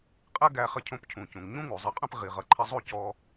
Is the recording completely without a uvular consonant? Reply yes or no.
no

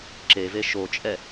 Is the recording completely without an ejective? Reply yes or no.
no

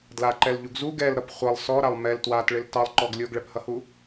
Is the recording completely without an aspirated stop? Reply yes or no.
yes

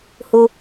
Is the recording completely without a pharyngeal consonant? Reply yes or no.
yes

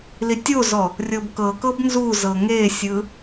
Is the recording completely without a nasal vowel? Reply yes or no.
yes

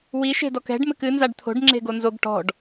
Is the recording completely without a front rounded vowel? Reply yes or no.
yes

